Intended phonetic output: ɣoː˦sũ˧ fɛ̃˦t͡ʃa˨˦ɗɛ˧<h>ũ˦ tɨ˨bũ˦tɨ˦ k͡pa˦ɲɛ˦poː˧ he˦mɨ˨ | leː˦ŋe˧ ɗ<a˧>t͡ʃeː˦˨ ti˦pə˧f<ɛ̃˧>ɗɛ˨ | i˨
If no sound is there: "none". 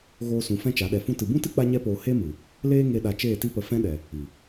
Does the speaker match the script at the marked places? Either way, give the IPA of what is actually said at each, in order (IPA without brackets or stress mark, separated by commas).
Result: f, a˧, ɛ̃˦